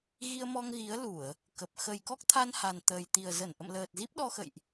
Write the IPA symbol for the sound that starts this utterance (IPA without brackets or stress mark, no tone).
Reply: ɣ